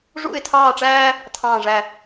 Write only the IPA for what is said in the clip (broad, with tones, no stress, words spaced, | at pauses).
ʐṵ˥˧ɪ̯tʰɑː˥˧ʈ͡ʂæː˥ | tʰɑ̃ː˥˧ʐæ˥˧